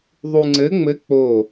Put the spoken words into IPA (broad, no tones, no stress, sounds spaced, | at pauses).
ðˤ u ŋ͡ǀ ɘ ŋ͡m ɘ k͡p o